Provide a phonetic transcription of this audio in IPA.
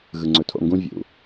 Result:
ɣɯ˨ŋ͡ǀɵ˨tʰo̰˦˨ŋɡũ˦ vʲṵ˨

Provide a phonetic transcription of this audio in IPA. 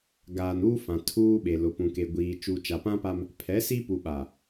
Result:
ɡaː˨nuː˦fã˨ tʰuː˦ɓe˨lʊ˨ pũ˨ke˨ɡʷiː˨ t͡ʃuː˨t͡ʃa˨pã˦pa˦m | pʰɛ˨˦si˦pu˨ɓa˨

